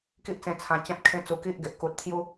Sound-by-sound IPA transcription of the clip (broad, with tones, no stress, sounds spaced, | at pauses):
k i˦ ʔ t͡s ẽ˧ t͡sʰ ã˧ t͡ɕ ã˦ t̚ kʰ ẽ˦ t͡s u˧ k i˦ ʔ ɡ e˨ ʔ k u˨ t̚ t̪ʰ j u˦